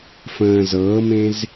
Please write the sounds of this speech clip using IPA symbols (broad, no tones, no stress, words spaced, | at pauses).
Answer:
fə̃ː zɤːmẽz